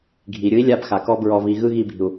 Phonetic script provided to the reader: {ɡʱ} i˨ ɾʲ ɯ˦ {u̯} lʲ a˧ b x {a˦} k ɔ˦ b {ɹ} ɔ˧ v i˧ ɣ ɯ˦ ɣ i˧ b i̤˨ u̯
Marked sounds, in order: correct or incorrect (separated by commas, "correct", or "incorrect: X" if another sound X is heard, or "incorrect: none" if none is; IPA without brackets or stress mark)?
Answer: correct, incorrect: i̯, incorrect: a˨, correct